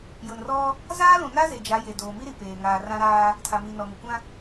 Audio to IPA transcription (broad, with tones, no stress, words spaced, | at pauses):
jʊ˨nrɔ˦ | zaː˦lũ˨na˦ ze˨d͡ʒa˨˦ je˨doː˨mi˦ɾi˨ peː˨ŋaː˨ rã˦ɾaː˦ | tʰa˨mi˨nɔ˨ ŋʊ˨kʷã˦